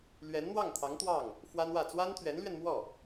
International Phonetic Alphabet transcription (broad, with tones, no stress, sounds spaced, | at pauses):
l ɥ ɛ˧˥ n n̪ w ɑ˥˩ ŋ t̪ʰ ɑ˧˥ ŋ t̪ w ɑ˥˩ ŋ | f w a˥ n w ä˥˩ t͡s w a˥ n t̪ʰ ɥ ɛ˧˥ n l ɥ ɛ˧ n m w ɔ˥˩